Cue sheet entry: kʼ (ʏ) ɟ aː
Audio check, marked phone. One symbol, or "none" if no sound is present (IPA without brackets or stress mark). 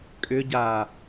ʏ